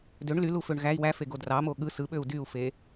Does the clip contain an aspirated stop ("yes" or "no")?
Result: no